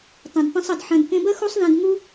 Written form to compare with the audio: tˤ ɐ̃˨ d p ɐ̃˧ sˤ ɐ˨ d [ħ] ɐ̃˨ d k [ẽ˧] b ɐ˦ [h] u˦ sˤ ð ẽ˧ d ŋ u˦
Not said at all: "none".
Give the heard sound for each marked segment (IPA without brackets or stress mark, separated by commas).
ħ, ẽ˧, x